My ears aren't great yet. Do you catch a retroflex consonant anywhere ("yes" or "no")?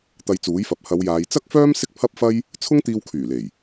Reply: no